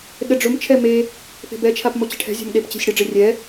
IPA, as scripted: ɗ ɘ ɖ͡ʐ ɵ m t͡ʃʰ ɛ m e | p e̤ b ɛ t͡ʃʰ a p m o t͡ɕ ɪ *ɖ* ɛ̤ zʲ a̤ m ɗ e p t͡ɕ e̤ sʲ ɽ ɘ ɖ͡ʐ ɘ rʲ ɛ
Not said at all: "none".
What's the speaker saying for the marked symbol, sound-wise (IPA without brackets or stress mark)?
ʈʰ